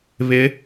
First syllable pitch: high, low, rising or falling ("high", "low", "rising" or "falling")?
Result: rising